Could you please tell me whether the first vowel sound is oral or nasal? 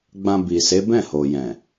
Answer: nasal